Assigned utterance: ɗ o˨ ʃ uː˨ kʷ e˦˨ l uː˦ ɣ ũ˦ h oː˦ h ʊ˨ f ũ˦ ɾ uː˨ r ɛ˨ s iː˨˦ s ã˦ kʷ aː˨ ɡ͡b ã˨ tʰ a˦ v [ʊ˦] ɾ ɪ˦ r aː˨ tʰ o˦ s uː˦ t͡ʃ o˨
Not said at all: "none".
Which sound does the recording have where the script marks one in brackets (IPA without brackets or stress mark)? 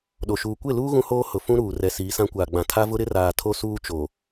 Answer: ʊ˦